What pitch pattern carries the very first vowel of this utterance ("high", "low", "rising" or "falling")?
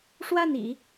falling